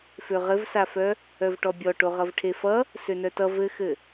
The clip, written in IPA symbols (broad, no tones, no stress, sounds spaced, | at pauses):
f ø ʁ ɘ v s a f œ | œ v ʈ ɔ bʲ ɔ ʈ o ʁ ʌ v ʈʰ e f ʌ | s ø n œ t ʌ v ɘ x ɘ